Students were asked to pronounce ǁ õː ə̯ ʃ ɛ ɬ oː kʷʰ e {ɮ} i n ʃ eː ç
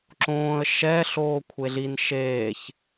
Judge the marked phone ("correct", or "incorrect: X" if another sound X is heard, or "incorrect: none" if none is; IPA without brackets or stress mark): correct